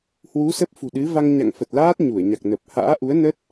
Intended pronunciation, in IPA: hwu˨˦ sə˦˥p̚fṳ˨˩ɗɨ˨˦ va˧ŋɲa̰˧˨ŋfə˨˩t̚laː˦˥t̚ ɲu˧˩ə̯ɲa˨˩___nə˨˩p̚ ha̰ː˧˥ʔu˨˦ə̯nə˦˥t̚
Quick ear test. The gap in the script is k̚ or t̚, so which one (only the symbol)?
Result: k̚